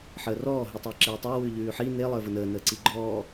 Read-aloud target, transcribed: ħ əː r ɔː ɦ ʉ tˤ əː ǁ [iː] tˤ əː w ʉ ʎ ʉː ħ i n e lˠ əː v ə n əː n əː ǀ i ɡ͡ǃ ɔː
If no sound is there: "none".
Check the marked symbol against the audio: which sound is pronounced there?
eː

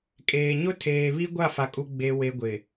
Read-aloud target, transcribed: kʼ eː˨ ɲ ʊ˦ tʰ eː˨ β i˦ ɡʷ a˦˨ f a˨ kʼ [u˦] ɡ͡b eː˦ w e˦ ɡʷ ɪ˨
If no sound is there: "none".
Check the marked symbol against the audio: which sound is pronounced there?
u˦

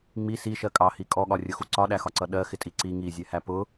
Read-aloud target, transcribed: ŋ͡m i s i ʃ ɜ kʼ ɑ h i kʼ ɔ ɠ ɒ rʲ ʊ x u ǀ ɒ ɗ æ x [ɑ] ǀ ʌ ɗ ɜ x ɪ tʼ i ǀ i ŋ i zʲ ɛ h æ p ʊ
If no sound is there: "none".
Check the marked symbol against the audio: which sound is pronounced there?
ɒ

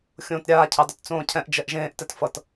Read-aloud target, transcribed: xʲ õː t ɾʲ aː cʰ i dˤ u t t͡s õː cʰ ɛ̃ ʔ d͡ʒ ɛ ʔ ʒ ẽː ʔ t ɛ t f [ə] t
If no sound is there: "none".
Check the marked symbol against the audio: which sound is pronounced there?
ʌ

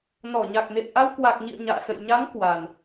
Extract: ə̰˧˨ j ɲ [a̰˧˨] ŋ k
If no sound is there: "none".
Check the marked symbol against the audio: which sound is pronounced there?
a˨˦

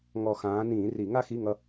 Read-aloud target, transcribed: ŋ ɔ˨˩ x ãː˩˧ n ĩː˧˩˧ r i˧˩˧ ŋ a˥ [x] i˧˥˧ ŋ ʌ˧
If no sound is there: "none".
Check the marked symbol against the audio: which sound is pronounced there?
x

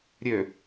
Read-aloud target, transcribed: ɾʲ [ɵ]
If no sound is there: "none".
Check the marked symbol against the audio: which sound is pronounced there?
ø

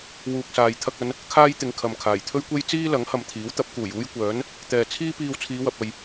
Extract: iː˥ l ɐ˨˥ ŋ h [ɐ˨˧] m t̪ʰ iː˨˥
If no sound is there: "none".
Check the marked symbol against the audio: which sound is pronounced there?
ɐ˨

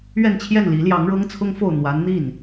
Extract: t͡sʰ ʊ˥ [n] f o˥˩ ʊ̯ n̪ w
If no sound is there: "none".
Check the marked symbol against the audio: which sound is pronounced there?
ŋ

